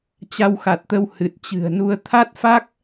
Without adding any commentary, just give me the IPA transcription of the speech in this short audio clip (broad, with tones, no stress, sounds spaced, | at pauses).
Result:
t͡ɕ a˧ w x a˨˩ t̚ t̪ ə˧ w h ɨ˨˩ t̚ t͡ɕ ɨ̤˨˩ ə̯ n u˧ ə̯ t̪ʰ a˦˥ t̚ f a˦˥ k̚